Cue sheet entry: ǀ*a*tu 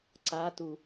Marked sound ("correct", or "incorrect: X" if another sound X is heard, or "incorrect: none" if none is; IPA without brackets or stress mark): correct